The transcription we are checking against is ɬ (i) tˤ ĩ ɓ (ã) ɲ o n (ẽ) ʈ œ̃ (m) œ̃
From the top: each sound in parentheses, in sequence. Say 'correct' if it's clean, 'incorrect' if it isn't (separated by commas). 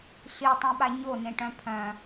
correct, incorrect, correct, incorrect